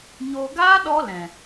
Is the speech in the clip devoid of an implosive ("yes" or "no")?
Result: no